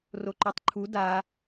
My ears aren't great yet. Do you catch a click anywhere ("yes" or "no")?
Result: yes